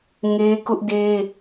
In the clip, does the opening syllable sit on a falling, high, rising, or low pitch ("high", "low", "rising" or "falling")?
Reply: high